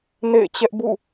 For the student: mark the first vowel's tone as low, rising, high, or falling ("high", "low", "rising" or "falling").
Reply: falling